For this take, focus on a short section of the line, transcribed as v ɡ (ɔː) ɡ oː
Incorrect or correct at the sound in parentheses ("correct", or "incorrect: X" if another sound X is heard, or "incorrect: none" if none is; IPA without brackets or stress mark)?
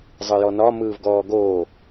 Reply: correct